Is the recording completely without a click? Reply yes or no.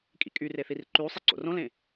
no